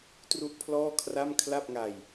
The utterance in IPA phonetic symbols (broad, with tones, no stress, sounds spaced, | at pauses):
t r u˥˩ ʔ pʰ l ɔː˥˩ kʰ r a˥˩ m kʰ l a˥˩ p̚ ŋ a˧ j